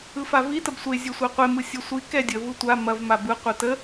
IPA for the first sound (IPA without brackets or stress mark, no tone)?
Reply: ɯ